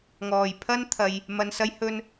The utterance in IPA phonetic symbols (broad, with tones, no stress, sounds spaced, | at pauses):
ŋ ɔː˨˩ j pʰ ɐ˥ n t̪ʰ ɐ˨ j | m ɐ˧ n s ɐ˥ j h ɵ˥ n